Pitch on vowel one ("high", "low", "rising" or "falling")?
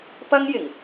high